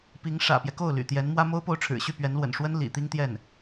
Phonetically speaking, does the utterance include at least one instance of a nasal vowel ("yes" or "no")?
no